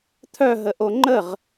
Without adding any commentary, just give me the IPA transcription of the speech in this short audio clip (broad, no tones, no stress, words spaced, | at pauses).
t̪ʰœɦə ʔoŋ͡ǃəʁ